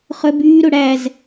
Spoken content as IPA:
χ œ b yː ɾ ɵ ɽ æ z

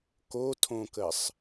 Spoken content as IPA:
k o tʰ õ k ə sˤ

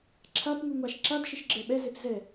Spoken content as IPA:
ǁʰ a p ŋʷ i ŋʷ a ʃ ǁ a d ʃ ɪ ʃ ɡ͡ǁ ɛ ɓ ɛ z e p z ɛ

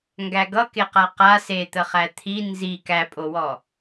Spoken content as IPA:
ŋ ɡ æ ɡ ʌ k e q a q a s e t̪ ə χ æ t̪ʰ i n z i k æ pʼ o w ɔ

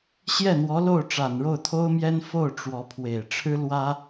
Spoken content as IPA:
ɕ j ɛ˥˩ n̪ w ɔ˧˥ l o˥˩ ʊ̯ ʈ͡ʂ a˨˩ n ɻ o˥˩ ʊ̯ t̪ʰ o˥ ʊ̯ m j ɛ˥ n f o˥˩ ʊ̯ ʈ͡ʂ w ɔ˧˥ pʰ w e˨˩ ɪ̯ ʈ͡ʂʰ ɻ̩˥ l w ä˥

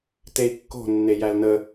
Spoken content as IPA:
t e i̯ kː o̤ nː e j æ l n ə

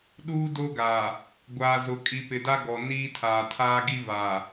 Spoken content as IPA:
ɗ uː˦ d o˦ ɡ a˨ | ɡʷ aː˨ z ʊ˨ kʼ i˨ p ɪ˨ d a˦ ɡ ɔ˨ n iː˦ tʰ aː˨ tʰ aː˦ ɡ i˦ v a˨

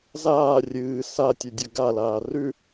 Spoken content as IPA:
z aː rʲ ɨː s a tʲ ɨ dʲ ɵ ɡ a l aː r ʉ

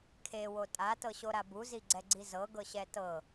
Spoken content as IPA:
kʰ e w o tʼ a t ɤ ɕ o ɾ a b u z i ɡ͡ǀ ɛ ɡ͡ǀ i z ɤ ɡ ɤ ɕ ɛ t ɤ

